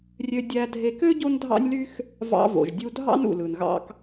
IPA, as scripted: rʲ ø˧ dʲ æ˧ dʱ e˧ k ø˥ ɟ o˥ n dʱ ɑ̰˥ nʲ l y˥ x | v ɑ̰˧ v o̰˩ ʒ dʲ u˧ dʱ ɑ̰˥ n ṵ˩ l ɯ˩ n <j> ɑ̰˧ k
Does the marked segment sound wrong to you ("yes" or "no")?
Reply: yes